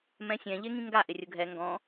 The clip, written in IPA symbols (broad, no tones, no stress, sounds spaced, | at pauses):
m ɛ̃ sʲ ɛ̃ ʎ e ŋ ĩ ŋ ɡ a ʔ ɪ rʲ ʊ ɡʱ ɛ ŋ ɡ ɔ̃